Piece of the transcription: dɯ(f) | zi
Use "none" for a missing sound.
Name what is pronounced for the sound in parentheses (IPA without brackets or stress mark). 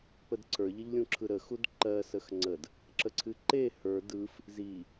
f